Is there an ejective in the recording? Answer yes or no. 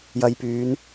no